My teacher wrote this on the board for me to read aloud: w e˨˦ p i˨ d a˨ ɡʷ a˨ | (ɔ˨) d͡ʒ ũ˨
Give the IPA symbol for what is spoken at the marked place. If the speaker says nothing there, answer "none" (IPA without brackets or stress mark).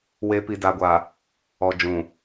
ɔ˨